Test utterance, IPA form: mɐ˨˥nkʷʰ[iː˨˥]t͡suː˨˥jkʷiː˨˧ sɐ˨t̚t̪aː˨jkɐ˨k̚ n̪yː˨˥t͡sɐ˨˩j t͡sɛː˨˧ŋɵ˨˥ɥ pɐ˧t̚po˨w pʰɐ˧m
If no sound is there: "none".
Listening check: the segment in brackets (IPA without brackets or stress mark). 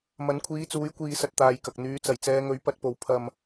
iː˨˥